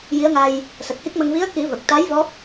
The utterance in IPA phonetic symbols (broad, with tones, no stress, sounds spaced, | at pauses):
j i˧˥ ə̯ ŋ a˧ j | s ə˨˩ k̚ h i˦˥ k̚ m ə˧ ŋ v i˧˥ ə̯ k i˨˩˦ v ə˨˩ k̚ t̪ a˧˥ j v ɔ˦˥ p̚